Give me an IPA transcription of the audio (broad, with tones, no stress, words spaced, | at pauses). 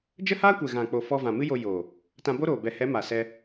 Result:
d͡ʒə˦haː˦kʷɛ˨ ɣã˨k͡po˨ fɔ˧vã˨mɨ˦jo˧ joː˨ | tã˧bo˦ɾoː˨ bɛ˨hɛ˨˦ ma˨ sɛ˧